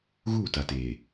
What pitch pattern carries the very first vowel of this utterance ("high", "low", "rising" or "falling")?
falling